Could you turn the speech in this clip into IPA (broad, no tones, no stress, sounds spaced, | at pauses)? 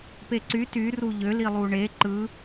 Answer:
p e ǀ y t y r u ʎ ø l i lˠ u ɳ e ǃ ɯ